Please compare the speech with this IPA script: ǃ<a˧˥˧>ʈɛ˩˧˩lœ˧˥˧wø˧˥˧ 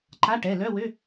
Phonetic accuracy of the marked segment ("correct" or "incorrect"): correct